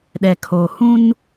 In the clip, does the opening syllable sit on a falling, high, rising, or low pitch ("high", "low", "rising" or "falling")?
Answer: low